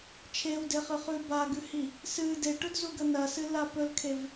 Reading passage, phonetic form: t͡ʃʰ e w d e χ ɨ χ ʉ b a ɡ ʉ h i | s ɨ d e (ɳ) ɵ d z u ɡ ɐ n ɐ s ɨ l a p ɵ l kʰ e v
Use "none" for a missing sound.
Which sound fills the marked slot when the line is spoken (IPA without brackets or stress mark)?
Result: ʈ